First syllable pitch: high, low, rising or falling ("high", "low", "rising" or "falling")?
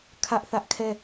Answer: high